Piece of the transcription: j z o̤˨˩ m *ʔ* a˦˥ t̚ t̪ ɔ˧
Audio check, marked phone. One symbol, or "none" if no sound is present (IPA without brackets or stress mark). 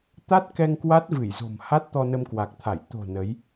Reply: h